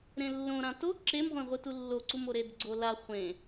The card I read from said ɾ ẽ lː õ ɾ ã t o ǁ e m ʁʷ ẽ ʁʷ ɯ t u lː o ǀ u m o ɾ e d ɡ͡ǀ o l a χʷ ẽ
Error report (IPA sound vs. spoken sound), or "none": none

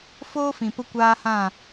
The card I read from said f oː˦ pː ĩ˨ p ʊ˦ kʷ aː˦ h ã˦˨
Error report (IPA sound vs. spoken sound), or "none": pː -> f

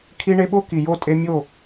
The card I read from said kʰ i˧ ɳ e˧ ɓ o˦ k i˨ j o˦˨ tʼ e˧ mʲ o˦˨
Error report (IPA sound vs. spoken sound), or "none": none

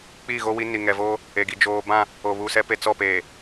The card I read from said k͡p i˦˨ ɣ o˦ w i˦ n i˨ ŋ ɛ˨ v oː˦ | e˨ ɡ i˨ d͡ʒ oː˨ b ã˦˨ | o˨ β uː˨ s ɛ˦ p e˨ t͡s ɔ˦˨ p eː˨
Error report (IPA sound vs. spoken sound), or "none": none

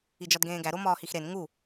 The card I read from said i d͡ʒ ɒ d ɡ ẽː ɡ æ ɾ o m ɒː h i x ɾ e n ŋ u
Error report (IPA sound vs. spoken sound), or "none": none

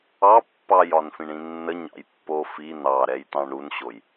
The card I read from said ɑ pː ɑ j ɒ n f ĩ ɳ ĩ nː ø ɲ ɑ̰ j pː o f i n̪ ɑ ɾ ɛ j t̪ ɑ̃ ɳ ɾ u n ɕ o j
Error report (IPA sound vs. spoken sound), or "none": ø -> ə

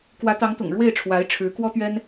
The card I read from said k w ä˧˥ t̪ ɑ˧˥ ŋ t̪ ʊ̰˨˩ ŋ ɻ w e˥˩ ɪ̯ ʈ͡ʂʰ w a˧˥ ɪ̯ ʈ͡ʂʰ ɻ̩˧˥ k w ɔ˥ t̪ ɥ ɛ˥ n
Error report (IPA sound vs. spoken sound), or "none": none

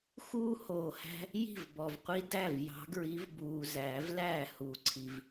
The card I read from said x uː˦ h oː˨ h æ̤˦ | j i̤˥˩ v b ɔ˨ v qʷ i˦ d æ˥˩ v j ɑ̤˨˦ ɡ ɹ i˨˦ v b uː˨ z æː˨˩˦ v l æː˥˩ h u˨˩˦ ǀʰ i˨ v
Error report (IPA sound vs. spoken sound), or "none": none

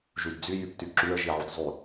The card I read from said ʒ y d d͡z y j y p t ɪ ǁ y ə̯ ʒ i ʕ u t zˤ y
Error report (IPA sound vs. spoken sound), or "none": ɪ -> y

